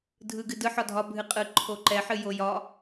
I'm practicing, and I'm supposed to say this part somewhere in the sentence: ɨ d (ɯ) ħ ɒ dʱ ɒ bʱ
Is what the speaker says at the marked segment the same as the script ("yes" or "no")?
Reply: yes